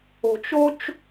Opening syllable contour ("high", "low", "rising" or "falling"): low